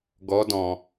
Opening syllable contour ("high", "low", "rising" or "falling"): rising